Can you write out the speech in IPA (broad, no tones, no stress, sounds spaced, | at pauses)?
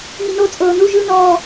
ŋ i n o t͡sʼ ɤː n u ʒ ɯ n ɔː